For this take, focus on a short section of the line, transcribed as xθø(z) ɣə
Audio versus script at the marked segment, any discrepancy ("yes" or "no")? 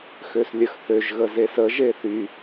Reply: yes